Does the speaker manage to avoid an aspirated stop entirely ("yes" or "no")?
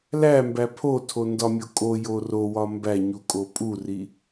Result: no